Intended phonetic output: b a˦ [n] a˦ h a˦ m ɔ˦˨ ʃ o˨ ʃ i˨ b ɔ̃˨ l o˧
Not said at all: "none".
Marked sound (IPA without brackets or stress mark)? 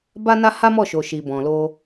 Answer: n